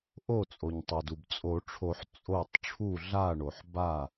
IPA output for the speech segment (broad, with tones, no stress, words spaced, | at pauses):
ʔo˧˩t͡sʼo˩ɲtˤo˩du˩b t͡sʼo˨˩˦ʈ͡ʂʰo˨˩˦ħ t͡sʼo˧˩tˤ ʈ͡ʂʰu˧˩ɮa˧˩ɳo˩ħ ba˧˩